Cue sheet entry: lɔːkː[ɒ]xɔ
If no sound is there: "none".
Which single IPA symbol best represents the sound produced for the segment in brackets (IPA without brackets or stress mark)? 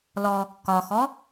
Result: ɒ